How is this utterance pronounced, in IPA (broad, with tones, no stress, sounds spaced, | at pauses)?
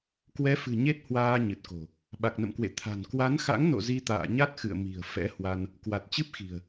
k w ɛ˨˦ f ɨ̤˨˩ ɲ e˦˥ t̚ h w aː˧ ɲ ɨ˨˩ t̚ k o̤˨˩ | ɓ a˨˩ k̚ n ə̰˧˨ m k w ḛ˧˨ t̪ʰ a̤˨˩ n k w a˨˦ n x a̰˧˥ ŋ n o̰˧˨ z i˧ t̪ a̰ː˧˨ ɲ a˦˥ t̚ x ɨ̰˧˨ ə̯ m i̤˨˩ ə̯ f ɛ̰˧˥ h w a˧ n | k w a˨˩ t̚ t͡ɕ ɨ˦˥ p̚ x i̤˨˩ ə̯